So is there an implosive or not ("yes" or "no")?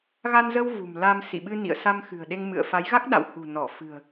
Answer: yes